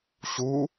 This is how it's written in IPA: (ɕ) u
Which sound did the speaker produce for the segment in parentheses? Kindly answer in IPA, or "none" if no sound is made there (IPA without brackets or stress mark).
ɕ